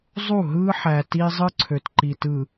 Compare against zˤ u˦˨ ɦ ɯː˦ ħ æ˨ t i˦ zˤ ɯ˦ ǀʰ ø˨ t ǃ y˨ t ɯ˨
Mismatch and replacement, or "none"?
y˨ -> i˨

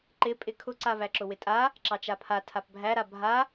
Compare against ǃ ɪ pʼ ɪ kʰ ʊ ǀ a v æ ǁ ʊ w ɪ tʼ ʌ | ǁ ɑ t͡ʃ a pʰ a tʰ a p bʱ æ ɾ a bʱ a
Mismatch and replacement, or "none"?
ʌ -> a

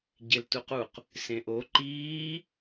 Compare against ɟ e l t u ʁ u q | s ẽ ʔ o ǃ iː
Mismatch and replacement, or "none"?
ʁ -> q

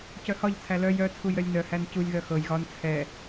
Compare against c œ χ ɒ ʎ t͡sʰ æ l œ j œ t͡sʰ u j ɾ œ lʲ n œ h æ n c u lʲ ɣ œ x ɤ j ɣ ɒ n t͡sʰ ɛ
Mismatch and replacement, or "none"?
χ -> h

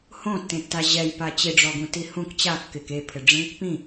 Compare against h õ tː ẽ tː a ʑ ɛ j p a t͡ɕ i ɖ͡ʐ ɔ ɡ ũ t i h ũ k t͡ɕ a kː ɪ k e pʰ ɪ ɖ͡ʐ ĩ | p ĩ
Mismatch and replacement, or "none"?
none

